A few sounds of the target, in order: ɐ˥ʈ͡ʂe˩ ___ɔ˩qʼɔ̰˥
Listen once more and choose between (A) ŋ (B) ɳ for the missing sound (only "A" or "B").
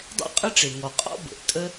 A